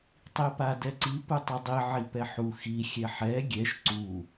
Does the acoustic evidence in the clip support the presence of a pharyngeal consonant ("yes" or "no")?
yes